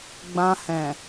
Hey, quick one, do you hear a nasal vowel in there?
yes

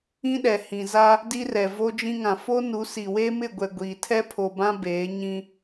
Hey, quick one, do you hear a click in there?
no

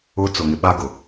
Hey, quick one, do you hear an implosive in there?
yes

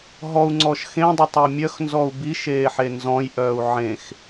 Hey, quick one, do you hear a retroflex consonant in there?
no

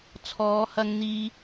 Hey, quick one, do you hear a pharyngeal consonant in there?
no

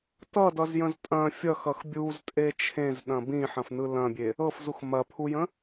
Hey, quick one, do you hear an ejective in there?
yes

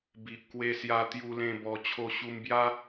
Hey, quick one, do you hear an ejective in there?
no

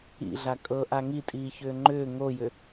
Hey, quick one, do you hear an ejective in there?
yes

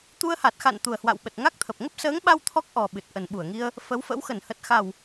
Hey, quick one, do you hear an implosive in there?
yes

